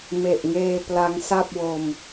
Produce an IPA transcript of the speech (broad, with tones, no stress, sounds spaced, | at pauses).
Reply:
m e˨˩ ʔ ŋ eː˧ p l a˦˥ ŋ s a˥˩ p̚ w o˧ m